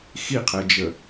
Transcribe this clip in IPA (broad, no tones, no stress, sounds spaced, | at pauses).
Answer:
x i qʰ ɛ d͡ʒ ə